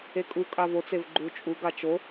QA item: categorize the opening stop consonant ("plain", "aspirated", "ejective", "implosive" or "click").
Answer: ejective